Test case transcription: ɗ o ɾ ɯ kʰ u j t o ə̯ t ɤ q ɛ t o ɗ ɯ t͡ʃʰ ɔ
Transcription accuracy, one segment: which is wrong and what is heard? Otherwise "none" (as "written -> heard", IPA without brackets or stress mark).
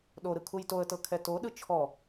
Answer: q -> kʰ